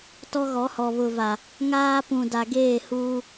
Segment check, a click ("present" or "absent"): absent